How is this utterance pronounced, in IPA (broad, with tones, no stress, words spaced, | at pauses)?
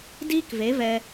diː˦kve˨˦vɛ˧